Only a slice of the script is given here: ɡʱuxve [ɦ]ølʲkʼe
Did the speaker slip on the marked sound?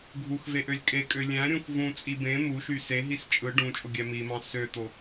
yes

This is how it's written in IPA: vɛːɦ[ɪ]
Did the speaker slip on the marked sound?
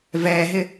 no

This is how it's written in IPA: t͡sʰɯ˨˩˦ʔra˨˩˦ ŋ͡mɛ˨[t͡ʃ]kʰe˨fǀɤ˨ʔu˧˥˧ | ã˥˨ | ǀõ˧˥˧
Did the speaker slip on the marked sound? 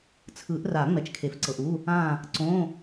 no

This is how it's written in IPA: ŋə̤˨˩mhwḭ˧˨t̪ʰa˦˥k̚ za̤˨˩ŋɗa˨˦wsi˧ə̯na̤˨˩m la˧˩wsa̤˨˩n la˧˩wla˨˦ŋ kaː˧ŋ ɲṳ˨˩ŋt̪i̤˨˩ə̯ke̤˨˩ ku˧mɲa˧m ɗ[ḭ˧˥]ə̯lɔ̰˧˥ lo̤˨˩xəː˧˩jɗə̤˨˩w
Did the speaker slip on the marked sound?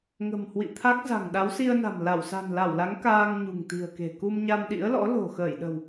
no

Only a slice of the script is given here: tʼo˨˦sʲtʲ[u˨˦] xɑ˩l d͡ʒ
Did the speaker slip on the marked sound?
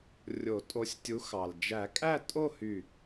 no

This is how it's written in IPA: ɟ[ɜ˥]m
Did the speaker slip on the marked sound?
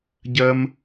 no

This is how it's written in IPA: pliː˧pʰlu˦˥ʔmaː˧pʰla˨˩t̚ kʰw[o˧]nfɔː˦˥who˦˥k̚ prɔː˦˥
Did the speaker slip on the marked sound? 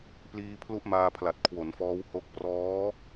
yes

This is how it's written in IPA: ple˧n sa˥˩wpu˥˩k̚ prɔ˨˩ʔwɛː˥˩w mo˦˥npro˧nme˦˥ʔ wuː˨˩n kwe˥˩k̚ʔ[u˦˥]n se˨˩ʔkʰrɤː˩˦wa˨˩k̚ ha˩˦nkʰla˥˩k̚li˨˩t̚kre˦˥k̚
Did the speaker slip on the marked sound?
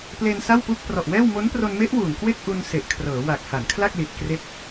yes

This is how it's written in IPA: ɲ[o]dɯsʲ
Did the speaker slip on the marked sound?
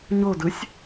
no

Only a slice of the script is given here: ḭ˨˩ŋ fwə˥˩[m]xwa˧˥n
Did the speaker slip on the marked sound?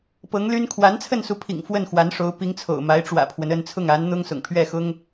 yes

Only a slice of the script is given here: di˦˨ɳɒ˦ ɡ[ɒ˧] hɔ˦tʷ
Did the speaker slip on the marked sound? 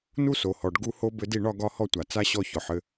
no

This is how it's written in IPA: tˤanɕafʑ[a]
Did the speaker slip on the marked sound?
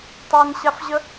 yes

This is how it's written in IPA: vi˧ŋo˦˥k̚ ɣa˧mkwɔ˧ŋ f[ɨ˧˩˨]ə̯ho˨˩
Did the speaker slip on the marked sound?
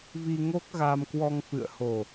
yes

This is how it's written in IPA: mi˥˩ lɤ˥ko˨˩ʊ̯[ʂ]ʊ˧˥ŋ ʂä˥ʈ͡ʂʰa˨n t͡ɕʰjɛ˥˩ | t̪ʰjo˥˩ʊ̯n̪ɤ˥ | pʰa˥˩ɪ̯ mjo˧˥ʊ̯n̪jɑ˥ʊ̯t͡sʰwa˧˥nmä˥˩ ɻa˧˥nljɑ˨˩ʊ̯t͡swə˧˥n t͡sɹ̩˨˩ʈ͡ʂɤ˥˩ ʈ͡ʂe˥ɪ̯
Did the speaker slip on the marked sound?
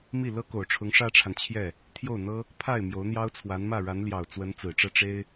yes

